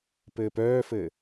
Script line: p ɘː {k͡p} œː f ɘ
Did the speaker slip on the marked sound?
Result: yes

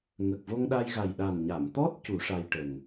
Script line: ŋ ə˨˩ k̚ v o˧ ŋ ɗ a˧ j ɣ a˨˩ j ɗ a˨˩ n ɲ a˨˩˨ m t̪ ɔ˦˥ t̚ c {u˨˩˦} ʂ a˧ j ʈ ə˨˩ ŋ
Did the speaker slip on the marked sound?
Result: no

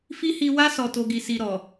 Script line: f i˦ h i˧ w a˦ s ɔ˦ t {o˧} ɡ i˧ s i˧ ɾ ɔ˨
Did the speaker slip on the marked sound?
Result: yes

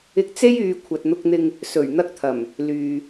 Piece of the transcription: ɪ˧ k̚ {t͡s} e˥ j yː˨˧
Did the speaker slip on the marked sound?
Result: no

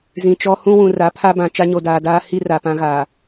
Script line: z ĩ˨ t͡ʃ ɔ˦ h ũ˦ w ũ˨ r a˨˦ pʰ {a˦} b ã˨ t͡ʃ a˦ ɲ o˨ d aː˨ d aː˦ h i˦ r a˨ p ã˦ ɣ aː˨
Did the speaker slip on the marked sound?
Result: no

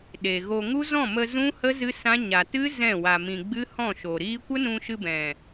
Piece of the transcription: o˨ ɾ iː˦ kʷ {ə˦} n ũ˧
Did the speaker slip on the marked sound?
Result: no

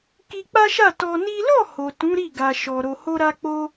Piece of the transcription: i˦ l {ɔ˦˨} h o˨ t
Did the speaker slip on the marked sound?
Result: no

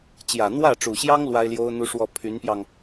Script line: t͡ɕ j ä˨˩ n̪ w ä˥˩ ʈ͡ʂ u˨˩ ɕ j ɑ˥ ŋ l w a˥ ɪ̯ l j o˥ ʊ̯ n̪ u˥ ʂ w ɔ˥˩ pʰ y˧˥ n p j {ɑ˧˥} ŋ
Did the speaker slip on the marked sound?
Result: yes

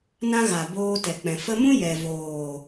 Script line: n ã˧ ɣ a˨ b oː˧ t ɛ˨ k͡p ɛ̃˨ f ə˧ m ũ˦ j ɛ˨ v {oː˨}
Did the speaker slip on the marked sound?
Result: no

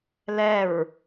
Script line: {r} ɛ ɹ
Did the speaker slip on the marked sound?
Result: yes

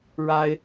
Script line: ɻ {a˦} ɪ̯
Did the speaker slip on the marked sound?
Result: no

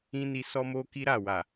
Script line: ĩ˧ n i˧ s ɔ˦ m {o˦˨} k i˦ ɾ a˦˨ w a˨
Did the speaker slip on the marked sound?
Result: yes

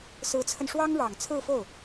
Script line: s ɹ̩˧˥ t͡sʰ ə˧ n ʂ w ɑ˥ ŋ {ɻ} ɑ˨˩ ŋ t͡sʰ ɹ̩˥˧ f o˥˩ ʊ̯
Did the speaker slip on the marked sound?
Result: no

